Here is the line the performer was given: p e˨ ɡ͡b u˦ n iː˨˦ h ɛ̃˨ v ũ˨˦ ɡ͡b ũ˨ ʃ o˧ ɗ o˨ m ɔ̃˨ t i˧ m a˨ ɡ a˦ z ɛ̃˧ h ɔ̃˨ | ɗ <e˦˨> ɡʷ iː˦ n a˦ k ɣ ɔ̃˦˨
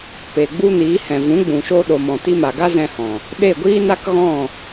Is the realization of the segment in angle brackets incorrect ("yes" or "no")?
no